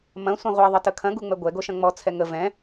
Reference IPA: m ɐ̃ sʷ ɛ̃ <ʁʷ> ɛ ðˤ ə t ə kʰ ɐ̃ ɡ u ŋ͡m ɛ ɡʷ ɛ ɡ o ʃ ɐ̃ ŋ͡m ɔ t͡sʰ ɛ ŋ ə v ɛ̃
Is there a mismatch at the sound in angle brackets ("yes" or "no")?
no